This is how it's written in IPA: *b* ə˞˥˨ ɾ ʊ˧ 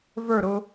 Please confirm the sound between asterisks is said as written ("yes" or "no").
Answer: no